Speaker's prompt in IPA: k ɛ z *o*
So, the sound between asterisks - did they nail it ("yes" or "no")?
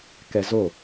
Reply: yes